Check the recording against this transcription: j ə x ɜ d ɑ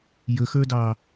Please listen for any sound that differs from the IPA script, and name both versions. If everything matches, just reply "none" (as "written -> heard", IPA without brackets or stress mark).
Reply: ɜ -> ə˞